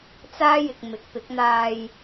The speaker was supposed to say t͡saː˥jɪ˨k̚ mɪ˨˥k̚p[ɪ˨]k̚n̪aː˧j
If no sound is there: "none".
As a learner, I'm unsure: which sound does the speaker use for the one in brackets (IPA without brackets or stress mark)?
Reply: ɪ˨˥